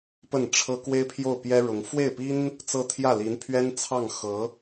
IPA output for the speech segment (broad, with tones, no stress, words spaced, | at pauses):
pə˥˩nʈ͡ʂʰɤ˥ kwe˥ɪ̯pʰjo˥˩ʊ̯pjɛ˥ɻʊ˧˥ŋ fwe˥˩ɪ̯pi˥n | t͡sɤ˥t̪ʰjä˥˩li˧˥npʰɥɛ˥n t͡sʰɑ˥˩ŋxɤ˧˥